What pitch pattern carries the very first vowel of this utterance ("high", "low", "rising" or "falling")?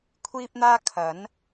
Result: high